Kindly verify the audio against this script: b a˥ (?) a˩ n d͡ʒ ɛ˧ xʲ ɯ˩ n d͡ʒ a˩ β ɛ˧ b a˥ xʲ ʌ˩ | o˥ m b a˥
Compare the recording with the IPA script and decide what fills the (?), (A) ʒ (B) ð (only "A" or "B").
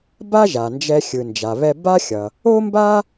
A